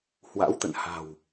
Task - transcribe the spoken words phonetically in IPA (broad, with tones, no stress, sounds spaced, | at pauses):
h w a̰˧˥ w t̪ ə̰˧˨ n h a̤˨˩ w